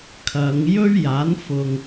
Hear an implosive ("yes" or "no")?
no